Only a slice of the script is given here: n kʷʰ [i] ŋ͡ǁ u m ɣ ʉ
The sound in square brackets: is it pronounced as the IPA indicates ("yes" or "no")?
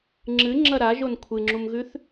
no